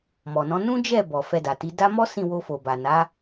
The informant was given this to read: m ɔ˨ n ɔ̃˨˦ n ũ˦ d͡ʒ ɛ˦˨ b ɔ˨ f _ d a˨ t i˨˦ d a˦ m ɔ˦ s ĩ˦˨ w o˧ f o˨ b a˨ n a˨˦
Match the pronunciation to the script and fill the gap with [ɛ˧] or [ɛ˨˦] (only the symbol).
ɛ˧